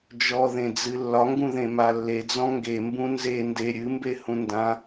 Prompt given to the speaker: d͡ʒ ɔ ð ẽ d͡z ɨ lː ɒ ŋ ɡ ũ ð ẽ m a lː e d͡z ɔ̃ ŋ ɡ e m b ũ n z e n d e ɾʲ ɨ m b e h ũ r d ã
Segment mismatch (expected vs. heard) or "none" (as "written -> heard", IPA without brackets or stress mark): r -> n